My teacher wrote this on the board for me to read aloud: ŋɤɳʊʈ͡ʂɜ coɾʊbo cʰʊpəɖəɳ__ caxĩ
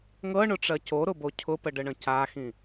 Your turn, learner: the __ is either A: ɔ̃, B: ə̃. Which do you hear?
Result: B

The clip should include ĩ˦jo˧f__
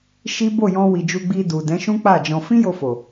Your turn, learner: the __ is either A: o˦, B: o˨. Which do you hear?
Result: B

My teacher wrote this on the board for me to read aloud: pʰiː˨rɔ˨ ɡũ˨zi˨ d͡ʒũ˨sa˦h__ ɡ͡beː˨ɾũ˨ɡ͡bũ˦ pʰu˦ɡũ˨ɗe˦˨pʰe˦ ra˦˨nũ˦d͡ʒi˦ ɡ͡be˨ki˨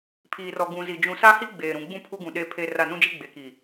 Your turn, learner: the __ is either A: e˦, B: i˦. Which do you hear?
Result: B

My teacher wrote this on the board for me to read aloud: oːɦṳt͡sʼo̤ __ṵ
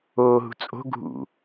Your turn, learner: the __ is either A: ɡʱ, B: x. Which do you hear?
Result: A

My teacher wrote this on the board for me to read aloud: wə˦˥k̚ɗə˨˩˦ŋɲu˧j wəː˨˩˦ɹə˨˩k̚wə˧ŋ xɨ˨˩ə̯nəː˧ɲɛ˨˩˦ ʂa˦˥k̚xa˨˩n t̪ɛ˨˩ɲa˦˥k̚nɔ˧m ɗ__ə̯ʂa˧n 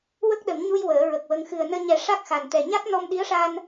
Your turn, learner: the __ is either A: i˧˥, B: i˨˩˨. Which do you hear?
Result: A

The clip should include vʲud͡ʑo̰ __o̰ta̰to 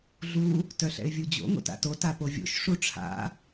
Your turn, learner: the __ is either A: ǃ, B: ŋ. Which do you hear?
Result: B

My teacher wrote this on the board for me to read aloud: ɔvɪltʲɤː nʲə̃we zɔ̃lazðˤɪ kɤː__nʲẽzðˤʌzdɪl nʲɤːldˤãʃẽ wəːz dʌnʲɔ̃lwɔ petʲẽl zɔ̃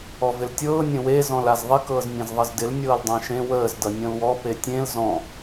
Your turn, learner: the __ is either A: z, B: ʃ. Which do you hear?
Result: A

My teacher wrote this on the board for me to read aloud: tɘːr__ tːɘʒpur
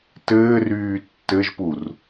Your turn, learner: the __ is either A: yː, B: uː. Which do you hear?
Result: A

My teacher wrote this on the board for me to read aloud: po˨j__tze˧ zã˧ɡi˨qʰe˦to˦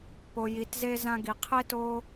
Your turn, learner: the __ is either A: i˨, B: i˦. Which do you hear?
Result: A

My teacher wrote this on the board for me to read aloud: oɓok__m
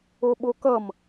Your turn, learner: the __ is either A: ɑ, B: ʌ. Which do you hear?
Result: B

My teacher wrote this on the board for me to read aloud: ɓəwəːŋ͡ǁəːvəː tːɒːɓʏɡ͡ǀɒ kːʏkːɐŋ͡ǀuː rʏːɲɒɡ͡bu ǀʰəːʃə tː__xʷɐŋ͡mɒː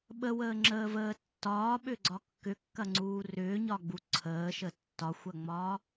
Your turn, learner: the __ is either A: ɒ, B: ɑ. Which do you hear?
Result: A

